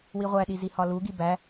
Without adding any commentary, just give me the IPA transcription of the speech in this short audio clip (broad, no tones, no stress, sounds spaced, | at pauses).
w i ʁʷ æ ɗ i z i h ɒ l u ɡ i b æ